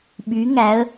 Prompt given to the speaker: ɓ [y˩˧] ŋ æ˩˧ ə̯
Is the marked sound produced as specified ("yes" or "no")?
yes